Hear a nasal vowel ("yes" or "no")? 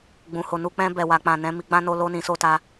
yes